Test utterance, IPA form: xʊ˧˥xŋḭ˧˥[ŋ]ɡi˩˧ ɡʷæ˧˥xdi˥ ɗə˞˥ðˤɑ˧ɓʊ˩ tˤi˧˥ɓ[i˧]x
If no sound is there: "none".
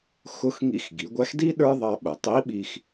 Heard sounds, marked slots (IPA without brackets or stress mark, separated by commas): x, i˧